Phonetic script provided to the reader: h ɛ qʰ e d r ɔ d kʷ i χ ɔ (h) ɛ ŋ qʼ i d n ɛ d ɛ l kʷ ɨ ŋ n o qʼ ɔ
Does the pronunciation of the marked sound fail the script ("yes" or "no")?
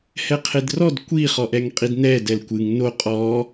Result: yes